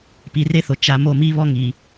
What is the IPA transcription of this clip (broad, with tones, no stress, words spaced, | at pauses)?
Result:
pi˨re˦θo˨ t͡ʃa˨mo˦˨mi˦ βɔ˦ŋi˨